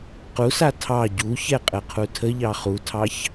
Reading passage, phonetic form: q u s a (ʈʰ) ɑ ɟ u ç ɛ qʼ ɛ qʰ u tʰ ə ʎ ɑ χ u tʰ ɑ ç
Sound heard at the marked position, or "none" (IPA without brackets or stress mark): tʰ